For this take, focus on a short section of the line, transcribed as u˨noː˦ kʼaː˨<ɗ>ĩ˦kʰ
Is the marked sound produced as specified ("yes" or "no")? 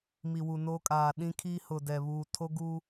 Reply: yes